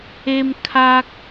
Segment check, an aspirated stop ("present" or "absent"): present